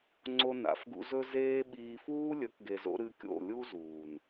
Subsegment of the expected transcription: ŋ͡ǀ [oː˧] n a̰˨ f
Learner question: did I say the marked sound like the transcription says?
no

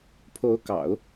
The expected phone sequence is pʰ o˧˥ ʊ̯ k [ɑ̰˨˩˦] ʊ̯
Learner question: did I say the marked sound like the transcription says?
yes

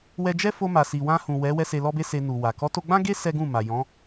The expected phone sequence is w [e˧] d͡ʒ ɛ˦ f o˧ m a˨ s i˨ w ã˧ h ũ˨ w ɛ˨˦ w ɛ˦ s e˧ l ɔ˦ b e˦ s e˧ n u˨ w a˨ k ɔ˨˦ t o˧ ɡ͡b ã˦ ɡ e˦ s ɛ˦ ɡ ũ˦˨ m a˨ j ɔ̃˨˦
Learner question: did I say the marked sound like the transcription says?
no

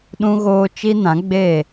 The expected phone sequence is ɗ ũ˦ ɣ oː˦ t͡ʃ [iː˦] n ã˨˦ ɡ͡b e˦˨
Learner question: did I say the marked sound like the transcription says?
no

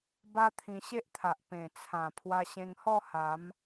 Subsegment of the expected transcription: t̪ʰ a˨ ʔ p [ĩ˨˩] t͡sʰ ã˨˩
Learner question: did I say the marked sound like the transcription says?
no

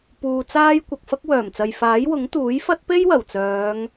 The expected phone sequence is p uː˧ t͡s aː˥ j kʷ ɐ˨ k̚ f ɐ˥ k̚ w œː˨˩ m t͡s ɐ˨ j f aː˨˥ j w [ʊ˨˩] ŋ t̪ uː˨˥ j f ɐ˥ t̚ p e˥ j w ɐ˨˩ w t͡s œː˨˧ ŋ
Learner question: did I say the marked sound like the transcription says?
no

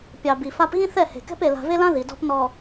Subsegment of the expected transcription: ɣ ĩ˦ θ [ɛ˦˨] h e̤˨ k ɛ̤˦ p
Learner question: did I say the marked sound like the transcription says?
yes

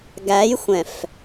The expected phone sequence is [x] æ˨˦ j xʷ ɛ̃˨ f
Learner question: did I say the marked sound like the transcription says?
no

